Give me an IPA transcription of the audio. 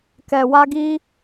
k ɛ˧ w a˦ ɡ i˦

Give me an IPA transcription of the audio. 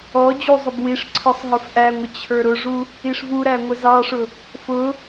ɔ d͡ʑ u zˤ ʊ b w i ʂ ǀʰ ə˞ sˤ ɦ ə˞ f ʔ æ ŋʷ ɪ t͡ɕʰ ə˞ ɾ ʊ ʐ u | i ʂ v u ɾ æ ŋʷ ə z ɑ ʂ ʊ | f ʊ

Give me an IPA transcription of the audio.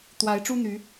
t̪ w a˨˦ ɪ̯ ʈ͡ʂ u˦ n̪ y˨˦

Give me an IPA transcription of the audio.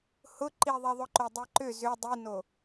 h ʊ ǃ i ðˤ i ðˤ ʊ ǃ o dˤ i ǃ ʏ z ʏ dˤ i n o

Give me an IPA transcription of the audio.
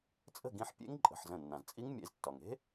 t͡sʼ ə̤˥˨ ɡ ĩ˧ ħ pʲ ḛ˦˥ ŋ ǃʼ ə̤˩˧˩ ħ z ə̃˧˩ nː ã˩ z t͡sʼ i˦˥ ŋ mʲ ḛ˧ z tː ɒ˩ ŋ e̤˦˥

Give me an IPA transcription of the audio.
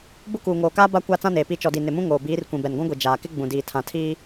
b ʊ˦ k uː˨ ŋ oː˨ k aː˦ b a˦ kʷ a˦ t͡s ã˦ n eː˨ p i˦˨ t͡ʃ ɔ˨ d i˨ n ɪ˨ m ũ˦ ŋ oː˨ b iː˨˦ r kʷ ĩ˨ b ɛ˨ n ɡʷ ũ˦ ɡʷ i˨ d͡ʒ aː˨ k ɪ˦ ɡ͡b ũ˨ d iː˨ tʰ ã˨ tʰ iː˦

